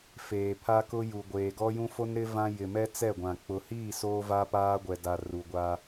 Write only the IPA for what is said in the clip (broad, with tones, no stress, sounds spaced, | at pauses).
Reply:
f eː˨ pʰ a˦ k ʊ˦ j u˨ ɡʷ eː˨ ɡ ɔ˦ j ũ˦ f o˦ n ɾ ɪ˦ v ã˦ j ɪ˨ m ɛ˦ t͡s ɛ˦˨ ɡʷ ã˨ k͡p ʊ˨ h iː˦˨ s oː˦ v a˦ p aː˦ ɡʷ ɛ˨ d a˨ r u˨ ɡʷ a˦